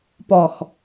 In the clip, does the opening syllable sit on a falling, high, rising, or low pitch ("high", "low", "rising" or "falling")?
low